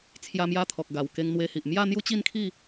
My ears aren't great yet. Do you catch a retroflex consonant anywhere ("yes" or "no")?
no